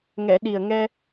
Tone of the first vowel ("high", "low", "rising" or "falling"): low